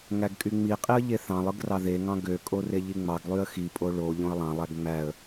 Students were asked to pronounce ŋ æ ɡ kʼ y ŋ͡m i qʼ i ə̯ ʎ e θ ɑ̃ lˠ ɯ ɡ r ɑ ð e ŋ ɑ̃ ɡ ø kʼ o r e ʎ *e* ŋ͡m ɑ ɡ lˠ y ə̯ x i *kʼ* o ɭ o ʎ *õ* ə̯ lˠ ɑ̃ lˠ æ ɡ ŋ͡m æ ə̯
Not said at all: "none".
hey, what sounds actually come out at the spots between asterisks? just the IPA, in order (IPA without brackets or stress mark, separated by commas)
i, pʼ, õ